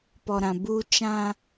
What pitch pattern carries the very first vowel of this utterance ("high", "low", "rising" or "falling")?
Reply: low